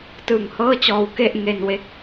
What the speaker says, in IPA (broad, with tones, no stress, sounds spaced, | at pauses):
t ɯː˨˩ ŋ h ɤː˥˩ t͡ɕ ɔː˧ w k e˥˩ ʔ ŋ e˧ n w e˥˩ k̚